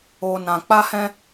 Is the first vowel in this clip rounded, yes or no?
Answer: yes